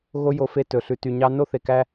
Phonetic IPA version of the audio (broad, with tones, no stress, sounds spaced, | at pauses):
ɣ o˦ j o˧ f e˦˨ t ɵ˨ ɬ ʉ˨ t y˨ ɲ ɑ˧ n o˦ θ e˨ k æ˧